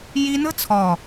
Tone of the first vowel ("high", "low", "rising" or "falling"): high